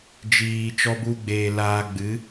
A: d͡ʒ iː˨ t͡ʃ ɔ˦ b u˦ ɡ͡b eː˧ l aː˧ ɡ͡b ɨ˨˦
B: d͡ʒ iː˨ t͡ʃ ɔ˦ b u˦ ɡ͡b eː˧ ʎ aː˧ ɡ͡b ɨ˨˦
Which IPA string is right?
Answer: A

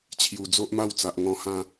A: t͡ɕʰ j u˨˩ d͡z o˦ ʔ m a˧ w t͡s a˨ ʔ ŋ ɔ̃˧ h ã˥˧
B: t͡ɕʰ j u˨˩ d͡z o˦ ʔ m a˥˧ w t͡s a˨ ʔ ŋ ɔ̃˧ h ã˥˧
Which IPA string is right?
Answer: B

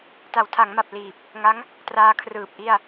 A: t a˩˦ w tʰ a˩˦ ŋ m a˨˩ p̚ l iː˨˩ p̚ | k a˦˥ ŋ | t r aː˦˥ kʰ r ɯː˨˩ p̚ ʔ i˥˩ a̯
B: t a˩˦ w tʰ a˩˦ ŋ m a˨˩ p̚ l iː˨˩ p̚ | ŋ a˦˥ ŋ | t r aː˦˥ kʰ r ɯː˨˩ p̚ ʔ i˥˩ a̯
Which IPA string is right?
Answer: B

